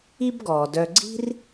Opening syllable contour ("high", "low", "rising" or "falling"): high